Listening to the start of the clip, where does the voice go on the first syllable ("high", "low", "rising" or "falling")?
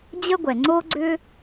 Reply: high